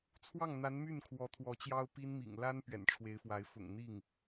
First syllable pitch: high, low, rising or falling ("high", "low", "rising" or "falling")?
falling